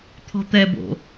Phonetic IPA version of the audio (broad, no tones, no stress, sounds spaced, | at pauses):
t̪ʰ ɔ̤ t̪ ɛ b o̰